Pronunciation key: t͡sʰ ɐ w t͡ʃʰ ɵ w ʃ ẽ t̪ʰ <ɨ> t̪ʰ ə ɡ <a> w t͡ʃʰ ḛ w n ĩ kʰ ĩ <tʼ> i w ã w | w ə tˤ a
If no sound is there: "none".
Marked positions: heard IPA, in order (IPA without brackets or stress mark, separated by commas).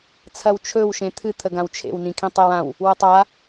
ɨ, ã, tˤ